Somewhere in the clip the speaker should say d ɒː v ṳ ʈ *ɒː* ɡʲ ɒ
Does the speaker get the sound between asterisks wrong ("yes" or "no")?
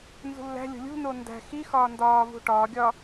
no